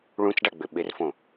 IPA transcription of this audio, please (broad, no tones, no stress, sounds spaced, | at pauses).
ɭ ũ t͡s ɖ a ɡ͡b ʏ ɓ ɪ r f õ